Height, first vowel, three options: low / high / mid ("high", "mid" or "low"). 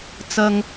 low